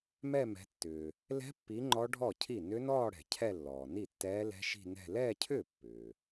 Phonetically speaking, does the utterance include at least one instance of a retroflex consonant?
yes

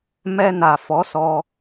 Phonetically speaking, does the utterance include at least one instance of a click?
no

